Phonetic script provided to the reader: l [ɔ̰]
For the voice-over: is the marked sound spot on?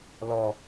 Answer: no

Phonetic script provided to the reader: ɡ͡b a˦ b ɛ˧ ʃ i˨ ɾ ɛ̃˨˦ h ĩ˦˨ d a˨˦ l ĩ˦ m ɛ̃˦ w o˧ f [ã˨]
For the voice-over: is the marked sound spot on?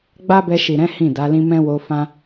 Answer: no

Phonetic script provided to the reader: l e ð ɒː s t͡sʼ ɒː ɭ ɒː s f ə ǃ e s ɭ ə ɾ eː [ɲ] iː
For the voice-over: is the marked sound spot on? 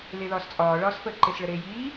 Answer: no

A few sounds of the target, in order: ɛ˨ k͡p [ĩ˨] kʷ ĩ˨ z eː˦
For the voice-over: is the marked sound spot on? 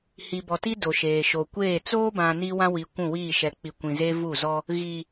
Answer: no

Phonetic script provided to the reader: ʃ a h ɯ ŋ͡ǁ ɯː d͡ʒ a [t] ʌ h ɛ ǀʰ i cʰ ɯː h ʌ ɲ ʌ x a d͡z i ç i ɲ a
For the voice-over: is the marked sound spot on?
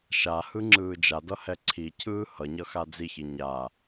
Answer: no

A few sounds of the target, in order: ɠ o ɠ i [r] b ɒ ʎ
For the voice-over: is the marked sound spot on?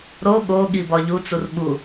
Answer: no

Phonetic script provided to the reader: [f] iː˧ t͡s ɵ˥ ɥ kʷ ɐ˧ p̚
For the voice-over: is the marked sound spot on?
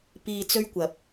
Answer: no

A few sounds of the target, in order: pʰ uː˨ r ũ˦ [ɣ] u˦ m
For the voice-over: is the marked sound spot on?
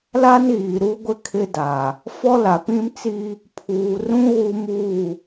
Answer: yes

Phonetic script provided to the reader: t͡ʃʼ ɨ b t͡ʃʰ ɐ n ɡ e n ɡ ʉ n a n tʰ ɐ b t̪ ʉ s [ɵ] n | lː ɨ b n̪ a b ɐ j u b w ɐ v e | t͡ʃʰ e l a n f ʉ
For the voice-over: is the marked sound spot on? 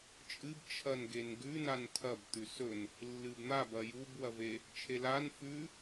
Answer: yes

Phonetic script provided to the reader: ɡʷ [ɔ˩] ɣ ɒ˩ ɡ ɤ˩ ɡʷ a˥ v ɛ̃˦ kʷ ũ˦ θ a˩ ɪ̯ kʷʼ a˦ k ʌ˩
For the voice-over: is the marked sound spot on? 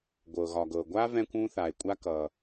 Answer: no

